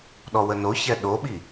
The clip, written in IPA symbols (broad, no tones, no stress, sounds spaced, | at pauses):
ɗ ɔ w ə n o ç ɛ ɗ o ɓ i